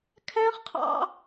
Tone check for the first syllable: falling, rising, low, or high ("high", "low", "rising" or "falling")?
high